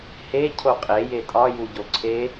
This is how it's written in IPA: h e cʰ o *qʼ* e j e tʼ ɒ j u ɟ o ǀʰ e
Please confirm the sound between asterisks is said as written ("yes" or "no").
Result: yes